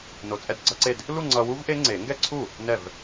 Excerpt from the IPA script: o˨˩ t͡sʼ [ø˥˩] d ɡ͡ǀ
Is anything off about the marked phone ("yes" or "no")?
yes